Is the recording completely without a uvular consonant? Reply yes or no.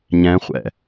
no